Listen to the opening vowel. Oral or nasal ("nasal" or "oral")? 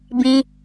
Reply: nasal